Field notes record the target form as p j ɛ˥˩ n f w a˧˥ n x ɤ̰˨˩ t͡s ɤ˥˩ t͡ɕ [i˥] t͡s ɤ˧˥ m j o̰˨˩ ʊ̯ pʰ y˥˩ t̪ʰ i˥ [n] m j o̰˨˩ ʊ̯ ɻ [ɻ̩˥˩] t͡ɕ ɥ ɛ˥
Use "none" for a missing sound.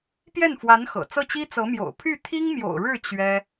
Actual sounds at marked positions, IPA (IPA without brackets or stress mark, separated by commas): i˥, ŋ, ɻ̩˥˩